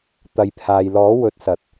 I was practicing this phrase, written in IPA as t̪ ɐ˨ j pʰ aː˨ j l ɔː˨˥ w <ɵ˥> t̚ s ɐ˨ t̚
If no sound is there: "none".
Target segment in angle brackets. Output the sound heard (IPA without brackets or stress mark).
ɵ˨˥